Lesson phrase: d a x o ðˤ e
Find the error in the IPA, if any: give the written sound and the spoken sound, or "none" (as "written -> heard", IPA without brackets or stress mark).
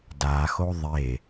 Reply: none